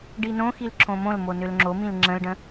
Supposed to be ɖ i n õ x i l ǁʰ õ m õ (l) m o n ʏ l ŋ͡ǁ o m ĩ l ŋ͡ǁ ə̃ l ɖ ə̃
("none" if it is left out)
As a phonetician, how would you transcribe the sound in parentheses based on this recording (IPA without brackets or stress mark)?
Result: l